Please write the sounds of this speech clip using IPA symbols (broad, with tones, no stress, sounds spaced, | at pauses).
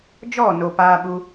d͡ʒ ɔ˦˨ n o˨ p aː˧ ɓ u˧